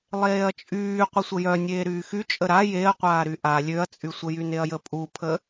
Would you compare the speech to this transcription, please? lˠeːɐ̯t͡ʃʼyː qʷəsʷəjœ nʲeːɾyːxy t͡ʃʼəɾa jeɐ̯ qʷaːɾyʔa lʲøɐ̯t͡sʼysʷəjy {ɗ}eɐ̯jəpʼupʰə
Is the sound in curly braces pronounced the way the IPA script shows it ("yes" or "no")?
no